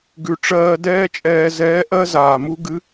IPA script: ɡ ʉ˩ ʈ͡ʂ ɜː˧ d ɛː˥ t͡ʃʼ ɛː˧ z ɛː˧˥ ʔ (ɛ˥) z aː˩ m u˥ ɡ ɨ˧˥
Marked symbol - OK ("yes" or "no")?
no